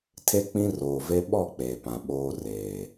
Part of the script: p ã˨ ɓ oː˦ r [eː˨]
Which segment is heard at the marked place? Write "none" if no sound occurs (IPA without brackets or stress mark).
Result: eː˨